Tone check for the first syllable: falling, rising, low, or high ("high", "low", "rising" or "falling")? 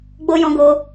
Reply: high